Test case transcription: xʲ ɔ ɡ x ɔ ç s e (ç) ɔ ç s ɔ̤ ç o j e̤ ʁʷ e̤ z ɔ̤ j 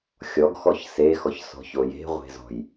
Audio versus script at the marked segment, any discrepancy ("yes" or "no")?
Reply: yes